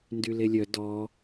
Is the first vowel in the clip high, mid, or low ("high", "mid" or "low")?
high